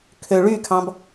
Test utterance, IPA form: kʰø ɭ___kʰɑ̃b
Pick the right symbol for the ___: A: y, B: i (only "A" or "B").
A